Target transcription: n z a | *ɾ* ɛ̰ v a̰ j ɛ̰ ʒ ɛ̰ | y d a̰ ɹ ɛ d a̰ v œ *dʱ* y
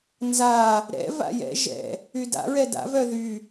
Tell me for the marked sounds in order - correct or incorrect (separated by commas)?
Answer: correct, incorrect